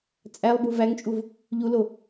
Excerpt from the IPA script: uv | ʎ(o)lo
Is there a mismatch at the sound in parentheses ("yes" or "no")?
yes